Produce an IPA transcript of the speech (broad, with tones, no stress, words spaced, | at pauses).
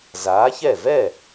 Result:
zaː˨˥çɛ˥˩ vɛ˥˩